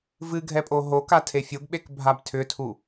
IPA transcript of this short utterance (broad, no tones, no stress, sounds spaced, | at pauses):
v ɨ ɡʱ ɛ pʼ o ɦ o k a tʰ e fʲ o ɡ ɓ e k bʱ a b tʰ ʏ tʰ u